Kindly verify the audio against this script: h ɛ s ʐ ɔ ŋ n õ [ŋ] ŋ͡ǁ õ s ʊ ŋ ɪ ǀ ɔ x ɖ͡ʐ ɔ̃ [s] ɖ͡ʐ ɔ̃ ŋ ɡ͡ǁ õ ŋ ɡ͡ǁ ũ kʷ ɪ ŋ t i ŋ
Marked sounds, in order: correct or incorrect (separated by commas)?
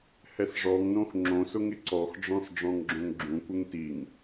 incorrect, correct